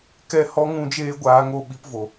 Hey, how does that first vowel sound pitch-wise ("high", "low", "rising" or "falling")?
falling